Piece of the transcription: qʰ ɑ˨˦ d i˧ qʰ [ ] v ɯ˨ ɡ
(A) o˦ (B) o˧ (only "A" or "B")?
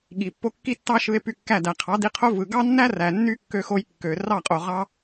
A